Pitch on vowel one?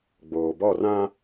low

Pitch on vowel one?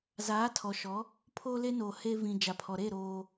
rising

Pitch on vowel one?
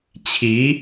rising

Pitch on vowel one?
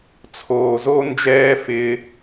low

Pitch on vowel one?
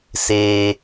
low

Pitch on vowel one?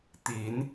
rising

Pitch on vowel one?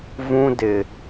high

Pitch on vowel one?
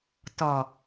low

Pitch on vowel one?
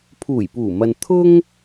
low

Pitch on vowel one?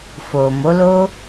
low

